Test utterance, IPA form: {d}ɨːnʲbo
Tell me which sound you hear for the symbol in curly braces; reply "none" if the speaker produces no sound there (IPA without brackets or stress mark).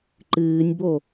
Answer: ǃ